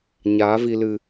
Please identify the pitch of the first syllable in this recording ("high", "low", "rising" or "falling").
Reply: rising